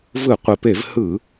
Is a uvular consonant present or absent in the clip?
present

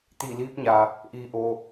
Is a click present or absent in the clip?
absent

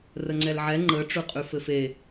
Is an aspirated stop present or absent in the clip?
absent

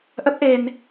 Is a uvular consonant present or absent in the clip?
absent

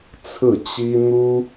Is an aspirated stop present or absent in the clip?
present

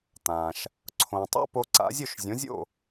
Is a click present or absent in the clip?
present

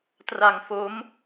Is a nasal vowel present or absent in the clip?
absent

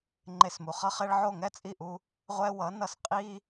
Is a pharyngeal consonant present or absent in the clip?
present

